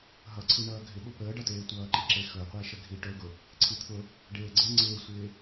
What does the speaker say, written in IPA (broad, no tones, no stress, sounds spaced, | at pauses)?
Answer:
ɦ ʌ ǀʰ i ɳ ʌː ɡʱ ɪ ɓ ʊ p əː ɖ ʌ t eː tʷ ʌː ǃ i ǁ e x ɵ qʷ e ʃ ə ɡʱ i ʈ ɵ ɡ ʊ | ǀʰ i t̪ʰ ʊ | ɖ eː ɡ͡ǀ e ŋ͡ǀ ɪː sʷ ɪː